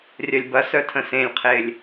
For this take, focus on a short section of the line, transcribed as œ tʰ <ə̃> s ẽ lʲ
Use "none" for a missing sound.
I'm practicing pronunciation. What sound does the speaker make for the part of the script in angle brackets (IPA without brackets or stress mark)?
ə̃